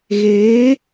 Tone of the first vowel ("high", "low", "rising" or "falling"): rising